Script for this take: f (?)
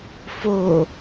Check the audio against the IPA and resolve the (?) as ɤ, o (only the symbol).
o